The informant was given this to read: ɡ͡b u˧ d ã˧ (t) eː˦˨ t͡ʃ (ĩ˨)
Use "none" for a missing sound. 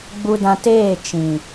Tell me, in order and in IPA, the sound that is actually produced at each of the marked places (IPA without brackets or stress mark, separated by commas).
t, ĩ˨